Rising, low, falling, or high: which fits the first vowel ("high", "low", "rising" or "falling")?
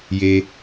high